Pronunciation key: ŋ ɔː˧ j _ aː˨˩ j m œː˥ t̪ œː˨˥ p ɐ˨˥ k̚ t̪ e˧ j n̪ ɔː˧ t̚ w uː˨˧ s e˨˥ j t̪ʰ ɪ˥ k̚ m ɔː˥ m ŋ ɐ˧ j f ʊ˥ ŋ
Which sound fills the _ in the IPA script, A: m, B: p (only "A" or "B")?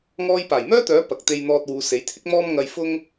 B